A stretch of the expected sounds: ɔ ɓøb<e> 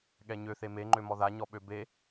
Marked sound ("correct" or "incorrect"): correct